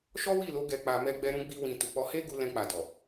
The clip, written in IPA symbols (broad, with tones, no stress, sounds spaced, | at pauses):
ʃ ɔ˦ w i˦˨ l o˨˦ ɡ ɛ˧ k͡p a˧ m ɛ˦ ɡ͡b ɛ˦ ɾ ũ˦ ɡ͡b i˦ w ĩ˧ t u˨ k͡p ɔ˧ h e˦ ɡ u˧ l ɛ̃˧ k͡p a˨ d ɔ˨